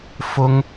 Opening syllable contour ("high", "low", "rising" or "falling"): high